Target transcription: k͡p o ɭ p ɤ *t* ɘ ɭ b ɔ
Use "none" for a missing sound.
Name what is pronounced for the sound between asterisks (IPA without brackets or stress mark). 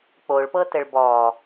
t